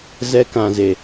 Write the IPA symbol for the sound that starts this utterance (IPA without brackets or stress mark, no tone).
z